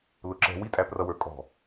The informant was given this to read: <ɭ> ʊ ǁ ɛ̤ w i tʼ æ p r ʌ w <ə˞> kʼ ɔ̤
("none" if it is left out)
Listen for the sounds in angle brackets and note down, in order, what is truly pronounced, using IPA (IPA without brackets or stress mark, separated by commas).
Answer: l, ə˞